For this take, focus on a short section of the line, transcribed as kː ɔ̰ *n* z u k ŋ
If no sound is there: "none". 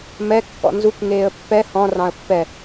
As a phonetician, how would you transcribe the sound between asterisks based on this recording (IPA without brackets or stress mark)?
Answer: n